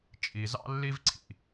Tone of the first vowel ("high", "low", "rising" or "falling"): low